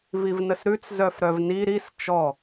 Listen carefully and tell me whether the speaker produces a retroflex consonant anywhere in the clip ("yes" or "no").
no